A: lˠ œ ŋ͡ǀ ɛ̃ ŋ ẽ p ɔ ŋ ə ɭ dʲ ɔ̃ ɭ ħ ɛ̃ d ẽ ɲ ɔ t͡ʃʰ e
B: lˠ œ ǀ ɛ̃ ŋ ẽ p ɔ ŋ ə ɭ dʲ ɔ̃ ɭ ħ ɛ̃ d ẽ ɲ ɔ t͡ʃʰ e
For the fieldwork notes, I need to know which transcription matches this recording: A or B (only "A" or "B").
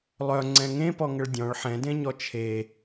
A